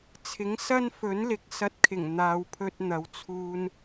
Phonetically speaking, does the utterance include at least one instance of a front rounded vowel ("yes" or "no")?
no